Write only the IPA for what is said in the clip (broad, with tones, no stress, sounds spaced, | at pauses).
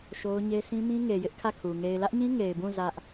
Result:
ʃ o˦ ʊ̯ ɲ e˦ s ĩ˦ m ĩ˦ ŋ e˨ j ɪ˦ ʔ kʰ ä˦˨ kʰ u˨ ŋ e˨ ɪ̯ l ä˦ ʔ ɲ ĩ˦ ŋ e˨ ɪ̯ b ũ˦˨ z ä˦ ʔ